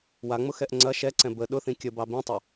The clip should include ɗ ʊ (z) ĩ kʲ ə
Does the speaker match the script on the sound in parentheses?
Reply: no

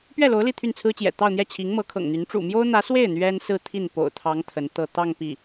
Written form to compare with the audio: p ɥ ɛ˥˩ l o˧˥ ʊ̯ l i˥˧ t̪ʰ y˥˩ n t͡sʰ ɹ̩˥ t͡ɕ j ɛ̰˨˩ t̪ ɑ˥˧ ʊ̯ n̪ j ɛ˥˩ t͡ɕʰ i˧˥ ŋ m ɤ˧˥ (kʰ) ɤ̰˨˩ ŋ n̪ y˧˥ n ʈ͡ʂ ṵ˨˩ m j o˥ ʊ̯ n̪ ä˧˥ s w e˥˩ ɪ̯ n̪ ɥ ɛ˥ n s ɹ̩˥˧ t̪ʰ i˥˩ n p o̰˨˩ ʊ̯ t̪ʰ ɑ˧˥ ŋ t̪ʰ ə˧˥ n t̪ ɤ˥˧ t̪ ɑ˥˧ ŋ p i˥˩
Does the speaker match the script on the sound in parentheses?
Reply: yes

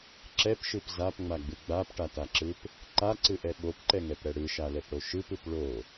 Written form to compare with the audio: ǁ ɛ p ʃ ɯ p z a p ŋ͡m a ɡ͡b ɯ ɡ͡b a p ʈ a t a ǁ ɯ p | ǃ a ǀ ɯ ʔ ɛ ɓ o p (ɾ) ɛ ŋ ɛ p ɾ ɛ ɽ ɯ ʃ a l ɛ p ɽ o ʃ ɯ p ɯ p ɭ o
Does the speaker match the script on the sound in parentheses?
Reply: no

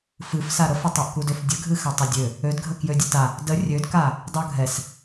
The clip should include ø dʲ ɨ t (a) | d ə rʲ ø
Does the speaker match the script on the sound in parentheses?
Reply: yes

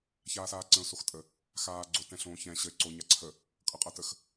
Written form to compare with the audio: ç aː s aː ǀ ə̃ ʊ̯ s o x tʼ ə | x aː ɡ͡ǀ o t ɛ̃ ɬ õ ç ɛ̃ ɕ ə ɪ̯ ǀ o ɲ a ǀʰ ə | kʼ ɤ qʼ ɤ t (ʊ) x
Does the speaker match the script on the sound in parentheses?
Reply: no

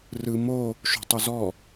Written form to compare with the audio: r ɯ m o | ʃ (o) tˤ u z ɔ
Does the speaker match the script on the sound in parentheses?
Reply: no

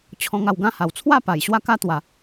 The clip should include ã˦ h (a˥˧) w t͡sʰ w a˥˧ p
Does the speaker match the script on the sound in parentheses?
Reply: no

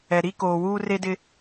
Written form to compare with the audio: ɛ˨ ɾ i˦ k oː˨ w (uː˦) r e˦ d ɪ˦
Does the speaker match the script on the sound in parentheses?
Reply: yes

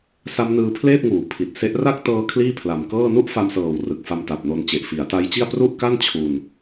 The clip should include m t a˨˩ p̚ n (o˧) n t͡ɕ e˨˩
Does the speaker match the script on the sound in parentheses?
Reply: yes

